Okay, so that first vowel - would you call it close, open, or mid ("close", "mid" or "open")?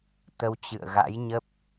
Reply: mid